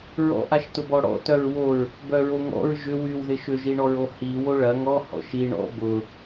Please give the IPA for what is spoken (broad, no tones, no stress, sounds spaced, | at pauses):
ɹ ɔ̰ ʔ a ʃ t ʊ b ɔ ɽ ɔ̰ t œ ɹ w o ɹ | b œ ɹ o ŋ ɔ̰ ɹ ʒ ʏ w y w ð ɪ ʃ ʏ ʒ i ɳ ɔ ɹ o h i w o ɭ ɐ ŋ ɔ h ɔ̰ ʃ i ɳ ɔ̰ b ʊ